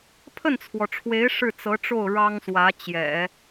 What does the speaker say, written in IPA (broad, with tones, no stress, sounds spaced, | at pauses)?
pʰ ə˥˩ n t͡sʰ w ɔ˩ ʈ͡ʂʰ w e˧˥ ɪ̯ ʂ ɻ̩˥˩ t͡s ɤ˧˥ ʈ͡ʂ o˥˩ ʊ̯ ɻ ɑ˥ ŋ s w ä˧˥ t͡ɕ j ɛ̰˨˩˦